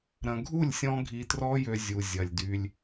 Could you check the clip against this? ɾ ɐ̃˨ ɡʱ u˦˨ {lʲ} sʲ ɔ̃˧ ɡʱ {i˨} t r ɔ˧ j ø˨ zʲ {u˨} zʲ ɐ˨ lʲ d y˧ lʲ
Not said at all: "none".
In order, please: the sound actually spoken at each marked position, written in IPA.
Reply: lʲ, i˨, u˨

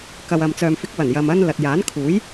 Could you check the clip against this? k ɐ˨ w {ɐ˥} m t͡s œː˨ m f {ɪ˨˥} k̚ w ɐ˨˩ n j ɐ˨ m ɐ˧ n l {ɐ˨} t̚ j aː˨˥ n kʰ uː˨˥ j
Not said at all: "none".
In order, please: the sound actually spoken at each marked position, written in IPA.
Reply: ɐ˨, ɪ˨˥, ɐ˨

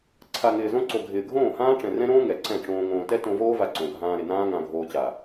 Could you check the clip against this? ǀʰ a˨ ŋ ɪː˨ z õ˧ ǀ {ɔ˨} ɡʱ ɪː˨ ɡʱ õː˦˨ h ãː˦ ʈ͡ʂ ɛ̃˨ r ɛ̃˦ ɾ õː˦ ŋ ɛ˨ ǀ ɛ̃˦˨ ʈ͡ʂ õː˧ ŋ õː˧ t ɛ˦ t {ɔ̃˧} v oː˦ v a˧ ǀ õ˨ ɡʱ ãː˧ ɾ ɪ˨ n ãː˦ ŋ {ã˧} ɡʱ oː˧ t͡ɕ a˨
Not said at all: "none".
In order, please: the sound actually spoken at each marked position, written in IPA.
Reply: o˨, õ˧, ã˧

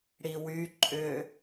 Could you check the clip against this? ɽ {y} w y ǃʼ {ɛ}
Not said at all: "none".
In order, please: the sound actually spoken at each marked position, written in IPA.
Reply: i, ʏ

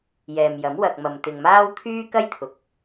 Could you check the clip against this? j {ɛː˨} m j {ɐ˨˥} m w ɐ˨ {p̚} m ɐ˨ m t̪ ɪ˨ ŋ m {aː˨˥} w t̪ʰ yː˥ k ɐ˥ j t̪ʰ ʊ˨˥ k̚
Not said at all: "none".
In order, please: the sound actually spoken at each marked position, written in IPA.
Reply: ɛː˨, ɐ˨˥, k̚, aː˥

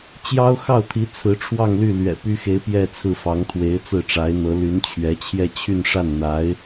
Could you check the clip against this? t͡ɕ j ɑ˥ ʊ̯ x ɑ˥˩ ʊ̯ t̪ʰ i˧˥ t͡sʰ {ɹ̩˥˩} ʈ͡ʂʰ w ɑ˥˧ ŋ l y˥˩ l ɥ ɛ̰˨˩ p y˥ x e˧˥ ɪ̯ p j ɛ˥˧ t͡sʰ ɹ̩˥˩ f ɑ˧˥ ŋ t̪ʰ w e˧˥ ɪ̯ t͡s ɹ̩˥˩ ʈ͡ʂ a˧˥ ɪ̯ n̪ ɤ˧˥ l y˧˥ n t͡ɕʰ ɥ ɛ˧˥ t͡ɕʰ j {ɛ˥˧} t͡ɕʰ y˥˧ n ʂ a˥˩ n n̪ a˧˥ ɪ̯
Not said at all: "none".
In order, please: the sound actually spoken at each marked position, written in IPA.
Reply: ɹ̩˧˥, ɛ˥˧

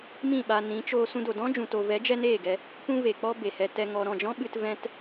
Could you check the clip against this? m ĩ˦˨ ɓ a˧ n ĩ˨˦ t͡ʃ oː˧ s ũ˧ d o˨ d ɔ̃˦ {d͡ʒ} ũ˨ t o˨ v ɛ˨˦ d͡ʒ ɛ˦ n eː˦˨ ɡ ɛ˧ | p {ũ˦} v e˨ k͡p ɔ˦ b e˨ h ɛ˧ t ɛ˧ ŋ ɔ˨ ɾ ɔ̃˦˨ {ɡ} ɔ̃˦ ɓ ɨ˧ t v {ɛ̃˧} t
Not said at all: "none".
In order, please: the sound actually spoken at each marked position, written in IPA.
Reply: d͡ʒ, ũ˦, d͡ʒ, ɛ̃˧

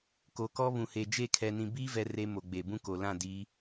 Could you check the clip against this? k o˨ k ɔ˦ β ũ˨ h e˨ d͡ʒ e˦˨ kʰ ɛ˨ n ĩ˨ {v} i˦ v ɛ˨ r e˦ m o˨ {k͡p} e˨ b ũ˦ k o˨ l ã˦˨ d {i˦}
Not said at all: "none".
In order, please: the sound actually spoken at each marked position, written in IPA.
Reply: b, ɡ͡b, i˨˦

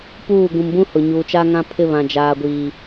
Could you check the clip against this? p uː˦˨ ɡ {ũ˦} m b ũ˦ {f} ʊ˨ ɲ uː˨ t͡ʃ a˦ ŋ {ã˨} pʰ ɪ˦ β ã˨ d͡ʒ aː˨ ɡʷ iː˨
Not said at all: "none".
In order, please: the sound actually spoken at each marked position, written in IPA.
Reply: ũ˨, h, ã˦

